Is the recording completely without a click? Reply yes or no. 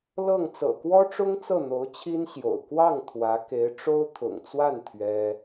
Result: yes